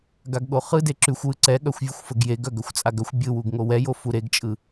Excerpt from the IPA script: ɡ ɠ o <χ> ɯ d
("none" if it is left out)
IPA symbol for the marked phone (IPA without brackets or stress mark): χ